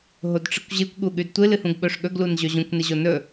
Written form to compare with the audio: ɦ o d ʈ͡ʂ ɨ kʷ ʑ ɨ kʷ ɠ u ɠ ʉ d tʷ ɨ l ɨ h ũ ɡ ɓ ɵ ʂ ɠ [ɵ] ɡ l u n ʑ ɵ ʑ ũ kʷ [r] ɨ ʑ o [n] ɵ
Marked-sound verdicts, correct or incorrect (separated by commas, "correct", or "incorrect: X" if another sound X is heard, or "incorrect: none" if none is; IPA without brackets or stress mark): correct, incorrect: n, correct